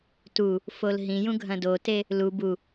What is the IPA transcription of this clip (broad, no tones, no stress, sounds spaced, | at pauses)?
t u | f o l ɦ ĩ j ũ ɡʱ ɐ̃ d o t e | l u b u